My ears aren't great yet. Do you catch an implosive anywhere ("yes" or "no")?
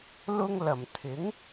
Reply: no